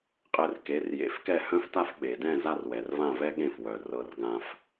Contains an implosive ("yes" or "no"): yes